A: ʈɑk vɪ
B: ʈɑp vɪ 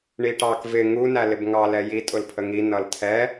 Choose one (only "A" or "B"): A